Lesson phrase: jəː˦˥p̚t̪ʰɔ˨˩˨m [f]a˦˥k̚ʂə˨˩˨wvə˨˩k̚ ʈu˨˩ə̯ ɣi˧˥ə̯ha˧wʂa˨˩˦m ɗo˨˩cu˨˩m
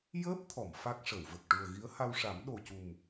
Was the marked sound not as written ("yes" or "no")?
no